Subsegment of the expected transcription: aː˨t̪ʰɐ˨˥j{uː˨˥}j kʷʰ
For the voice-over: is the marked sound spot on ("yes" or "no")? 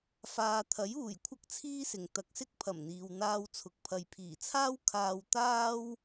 no